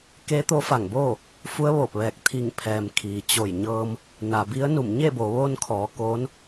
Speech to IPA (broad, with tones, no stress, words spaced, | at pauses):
ke˧˥ t̪o˧˥fa˧˩ŋboː˥˨ | fu˧˥ə̯ʋoː˧˩p̚ʋɛː˧˩k̚ t̪ʰi˧˩ŋpʰɛː˩m kʰiː˩t͡ɕo˧˩jɲɤː˧m | na˩bi˧˥ə̯ nu˧˩mɲe˥˨bo˩˧ ʋoː˧nkʰɔː˩˧ koː˧˥n